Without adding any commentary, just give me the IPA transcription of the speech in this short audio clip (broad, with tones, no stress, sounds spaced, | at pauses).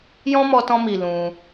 j ɔ̃˦ m ɔ˧ t ɔ̃˧ m i˨ l ũ˧